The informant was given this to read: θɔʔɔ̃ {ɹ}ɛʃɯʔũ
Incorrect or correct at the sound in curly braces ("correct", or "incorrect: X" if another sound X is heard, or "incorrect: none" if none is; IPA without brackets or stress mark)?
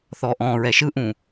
correct